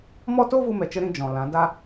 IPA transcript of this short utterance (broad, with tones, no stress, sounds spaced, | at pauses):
m ɔ˦ t o˦ v u˧ m ɛ˨ t͡ʃ ə˧ ɾ ĩ˦ d͡ʒ ɔ̃˨ l ã˨˦ d a˦